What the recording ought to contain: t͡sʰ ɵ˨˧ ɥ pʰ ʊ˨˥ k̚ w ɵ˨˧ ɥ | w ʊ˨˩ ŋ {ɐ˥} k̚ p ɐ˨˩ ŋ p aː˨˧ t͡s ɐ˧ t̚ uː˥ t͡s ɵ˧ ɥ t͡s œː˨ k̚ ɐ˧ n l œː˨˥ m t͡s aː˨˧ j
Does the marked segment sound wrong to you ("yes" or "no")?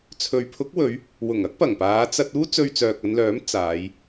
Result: no